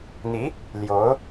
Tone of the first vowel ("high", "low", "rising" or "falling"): rising